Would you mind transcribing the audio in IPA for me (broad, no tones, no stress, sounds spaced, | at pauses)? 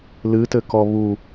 l ɨ t ɘ k ɔ β u